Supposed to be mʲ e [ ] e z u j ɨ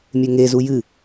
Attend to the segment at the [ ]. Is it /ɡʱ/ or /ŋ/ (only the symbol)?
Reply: ŋ